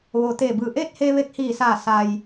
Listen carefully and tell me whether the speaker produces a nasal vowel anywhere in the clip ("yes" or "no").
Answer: no